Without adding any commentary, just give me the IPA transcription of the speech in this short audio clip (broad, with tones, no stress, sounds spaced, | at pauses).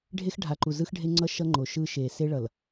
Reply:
ɖʱ e˦ x ɖʱ a˨ ǃ u˨ z ɯ˦ x ɖʱ e˦ ŋ͡ǀ ʌ˦ ʃ ʌ˦ ŋ͡ǃ o˨ ʃ ɯ˦ ʃ eː˨ s e˦ ɭ ʌ˨ l